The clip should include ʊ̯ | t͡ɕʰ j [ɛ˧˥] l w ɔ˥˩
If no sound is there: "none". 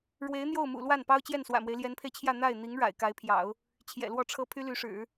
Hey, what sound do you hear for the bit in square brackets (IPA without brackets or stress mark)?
ɛ̰˨˩